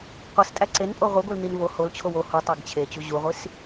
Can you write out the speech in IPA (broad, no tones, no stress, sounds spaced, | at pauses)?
qʷ i s tʼ æ ǀ e n pʼ o ʁʷ i ɡʷ i l n i n v o h o l t͡ɕʰ o w o h u tˤ æ ɡ t͡ɕʰ e t͡ɕ u ʑ u ʁʷ i s